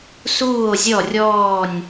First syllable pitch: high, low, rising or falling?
falling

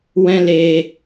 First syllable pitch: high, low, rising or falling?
high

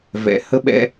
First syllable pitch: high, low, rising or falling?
rising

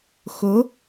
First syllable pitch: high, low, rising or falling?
rising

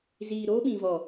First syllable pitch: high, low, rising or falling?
low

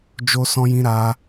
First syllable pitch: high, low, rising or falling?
high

